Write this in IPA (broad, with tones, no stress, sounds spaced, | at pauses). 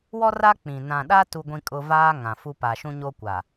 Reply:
w ɔ˦ r a˦ k͡p ĩ˨ n ã˨ ɗ a˦ t u˦ ɡʷ ĩ˦ kʼ ʊ˦ v aː˦ ŋ ã˨ f u˦ p a˨ ʃ ũ˦ ɲ o˦ kʷ a˨